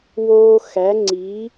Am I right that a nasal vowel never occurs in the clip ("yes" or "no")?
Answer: yes